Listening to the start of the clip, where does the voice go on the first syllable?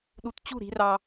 low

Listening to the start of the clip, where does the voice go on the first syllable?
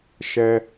high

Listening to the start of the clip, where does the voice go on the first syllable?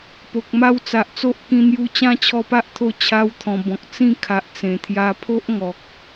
low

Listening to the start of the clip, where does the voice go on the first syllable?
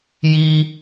high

